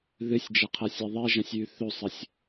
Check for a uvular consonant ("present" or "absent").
present